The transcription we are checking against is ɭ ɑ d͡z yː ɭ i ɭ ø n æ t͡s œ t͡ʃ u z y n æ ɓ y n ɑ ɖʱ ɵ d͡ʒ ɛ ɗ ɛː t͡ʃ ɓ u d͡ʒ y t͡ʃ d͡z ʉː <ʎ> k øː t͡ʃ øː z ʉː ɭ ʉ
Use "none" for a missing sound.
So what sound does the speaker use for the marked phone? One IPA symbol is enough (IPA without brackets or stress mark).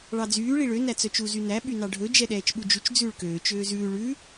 ɭ